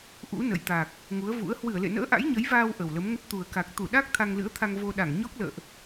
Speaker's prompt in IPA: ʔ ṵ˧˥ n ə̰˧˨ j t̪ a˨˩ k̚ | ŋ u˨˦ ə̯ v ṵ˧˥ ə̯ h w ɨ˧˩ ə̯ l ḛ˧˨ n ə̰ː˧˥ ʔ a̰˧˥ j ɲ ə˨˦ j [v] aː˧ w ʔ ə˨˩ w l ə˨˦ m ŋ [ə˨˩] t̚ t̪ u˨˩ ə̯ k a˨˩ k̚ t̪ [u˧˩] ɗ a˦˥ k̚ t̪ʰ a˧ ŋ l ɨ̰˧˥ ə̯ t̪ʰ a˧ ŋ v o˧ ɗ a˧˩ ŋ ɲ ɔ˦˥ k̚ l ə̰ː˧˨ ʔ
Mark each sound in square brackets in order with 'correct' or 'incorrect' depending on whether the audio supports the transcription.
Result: correct, incorrect: ə˦˥, correct

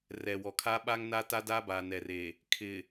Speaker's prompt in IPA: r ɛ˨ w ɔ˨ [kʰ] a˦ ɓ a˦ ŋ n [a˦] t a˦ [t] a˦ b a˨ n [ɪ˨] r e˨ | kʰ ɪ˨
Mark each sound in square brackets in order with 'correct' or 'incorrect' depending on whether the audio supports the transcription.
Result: correct, correct, incorrect: d, incorrect: ɛ˨

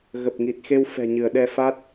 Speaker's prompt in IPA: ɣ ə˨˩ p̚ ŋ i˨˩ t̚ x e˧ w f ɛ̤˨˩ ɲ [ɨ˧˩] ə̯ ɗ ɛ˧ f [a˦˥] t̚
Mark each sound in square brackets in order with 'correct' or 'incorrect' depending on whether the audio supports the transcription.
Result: correct, correct

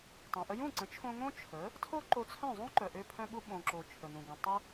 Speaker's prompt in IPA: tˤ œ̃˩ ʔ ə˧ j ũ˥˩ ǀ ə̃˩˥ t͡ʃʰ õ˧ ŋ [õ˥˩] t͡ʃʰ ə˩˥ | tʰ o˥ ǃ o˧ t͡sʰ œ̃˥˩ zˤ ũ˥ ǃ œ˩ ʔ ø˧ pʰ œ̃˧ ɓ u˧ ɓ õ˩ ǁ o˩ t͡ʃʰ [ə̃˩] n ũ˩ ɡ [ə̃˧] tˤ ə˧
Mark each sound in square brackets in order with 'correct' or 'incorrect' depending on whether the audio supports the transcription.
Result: incorrect: õ˥, incorrect: ə˩, incorrect: ə̃˩

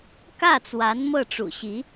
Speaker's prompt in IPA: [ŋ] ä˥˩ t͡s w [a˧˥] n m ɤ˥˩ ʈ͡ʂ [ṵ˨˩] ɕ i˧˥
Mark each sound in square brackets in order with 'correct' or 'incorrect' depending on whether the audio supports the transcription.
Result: incorrect: k, correct, correct

